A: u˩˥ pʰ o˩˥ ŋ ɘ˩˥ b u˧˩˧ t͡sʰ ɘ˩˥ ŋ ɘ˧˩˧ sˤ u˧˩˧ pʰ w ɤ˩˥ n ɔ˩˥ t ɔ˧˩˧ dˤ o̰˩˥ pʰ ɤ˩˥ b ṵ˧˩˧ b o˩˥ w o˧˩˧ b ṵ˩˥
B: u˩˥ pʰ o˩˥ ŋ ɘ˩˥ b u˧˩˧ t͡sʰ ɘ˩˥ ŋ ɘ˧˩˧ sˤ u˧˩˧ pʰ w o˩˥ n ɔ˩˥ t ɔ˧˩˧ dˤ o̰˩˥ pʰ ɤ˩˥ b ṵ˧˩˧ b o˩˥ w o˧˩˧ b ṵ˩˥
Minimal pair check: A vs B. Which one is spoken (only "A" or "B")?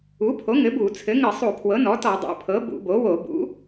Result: A